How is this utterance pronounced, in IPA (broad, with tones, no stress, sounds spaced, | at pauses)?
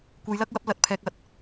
kʷ e˨˧ j l ɐ˥ k̚ w ɐ˨˥ p̚ l ɐ˨˥ t̚ pʰ ɛː˨ k̚ ɐ˧ t̚